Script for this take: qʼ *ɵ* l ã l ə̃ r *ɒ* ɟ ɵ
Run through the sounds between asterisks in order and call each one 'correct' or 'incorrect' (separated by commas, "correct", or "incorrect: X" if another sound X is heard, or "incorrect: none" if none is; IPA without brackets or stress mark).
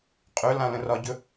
correct, correct